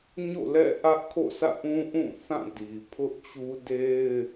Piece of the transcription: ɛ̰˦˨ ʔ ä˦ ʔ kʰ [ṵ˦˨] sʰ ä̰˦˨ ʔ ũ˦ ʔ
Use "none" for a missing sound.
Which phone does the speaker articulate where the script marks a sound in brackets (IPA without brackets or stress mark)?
o̰˦˨